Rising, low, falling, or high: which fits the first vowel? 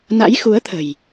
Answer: rising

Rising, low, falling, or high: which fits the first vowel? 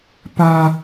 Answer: high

